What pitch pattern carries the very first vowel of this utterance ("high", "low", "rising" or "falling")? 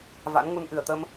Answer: rising